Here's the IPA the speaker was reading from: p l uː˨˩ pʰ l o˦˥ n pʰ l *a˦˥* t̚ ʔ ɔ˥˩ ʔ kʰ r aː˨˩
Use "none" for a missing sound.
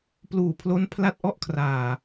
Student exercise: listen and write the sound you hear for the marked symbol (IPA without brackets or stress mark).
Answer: a˥˩